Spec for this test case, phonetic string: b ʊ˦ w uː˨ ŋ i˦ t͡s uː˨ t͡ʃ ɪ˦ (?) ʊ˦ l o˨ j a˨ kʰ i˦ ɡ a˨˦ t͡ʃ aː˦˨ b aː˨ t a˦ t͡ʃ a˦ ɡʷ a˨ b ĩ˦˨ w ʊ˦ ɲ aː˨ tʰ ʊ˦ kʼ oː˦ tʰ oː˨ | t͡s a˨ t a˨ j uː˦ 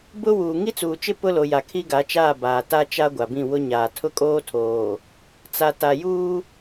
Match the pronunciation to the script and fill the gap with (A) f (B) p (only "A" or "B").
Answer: B